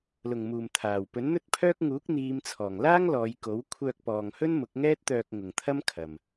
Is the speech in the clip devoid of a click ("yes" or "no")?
yes